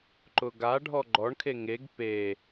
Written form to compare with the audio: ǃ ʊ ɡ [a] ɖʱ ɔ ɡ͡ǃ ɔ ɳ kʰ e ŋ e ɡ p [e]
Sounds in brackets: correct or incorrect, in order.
correct, correct

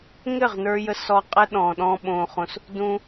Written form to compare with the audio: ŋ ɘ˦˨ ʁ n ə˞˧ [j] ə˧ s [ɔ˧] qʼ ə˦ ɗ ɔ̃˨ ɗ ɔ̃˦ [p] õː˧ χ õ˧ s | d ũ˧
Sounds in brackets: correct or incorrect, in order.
correct, correct, incorrect

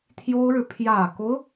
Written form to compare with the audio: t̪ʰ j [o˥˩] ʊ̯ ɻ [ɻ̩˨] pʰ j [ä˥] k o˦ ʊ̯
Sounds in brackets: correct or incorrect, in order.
incorrect, correct, incorrect

